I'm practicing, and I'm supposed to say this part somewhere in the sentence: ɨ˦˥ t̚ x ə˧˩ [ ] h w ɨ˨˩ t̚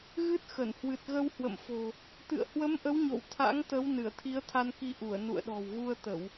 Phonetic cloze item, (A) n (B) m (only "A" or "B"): A